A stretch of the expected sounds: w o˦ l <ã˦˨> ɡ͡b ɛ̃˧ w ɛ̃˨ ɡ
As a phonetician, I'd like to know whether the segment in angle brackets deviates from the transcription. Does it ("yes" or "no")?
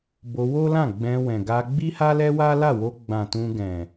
no